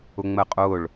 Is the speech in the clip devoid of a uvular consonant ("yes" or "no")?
no